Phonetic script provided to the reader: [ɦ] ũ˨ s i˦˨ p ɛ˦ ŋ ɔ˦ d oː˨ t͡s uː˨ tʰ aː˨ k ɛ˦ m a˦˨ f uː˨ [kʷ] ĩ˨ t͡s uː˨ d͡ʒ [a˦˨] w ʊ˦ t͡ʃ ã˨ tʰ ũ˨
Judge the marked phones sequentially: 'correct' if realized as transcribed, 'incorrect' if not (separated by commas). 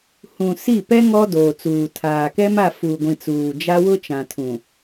incorrect, incorrect, incorrect